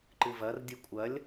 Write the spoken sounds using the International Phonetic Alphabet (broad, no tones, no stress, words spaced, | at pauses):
ǃɨvɐr dʲɨkʷʼɐlʲ